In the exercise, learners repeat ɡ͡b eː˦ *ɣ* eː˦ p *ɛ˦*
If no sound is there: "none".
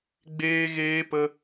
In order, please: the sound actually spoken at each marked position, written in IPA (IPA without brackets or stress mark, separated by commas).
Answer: ɣ, ə˦